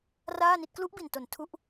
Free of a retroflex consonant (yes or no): yes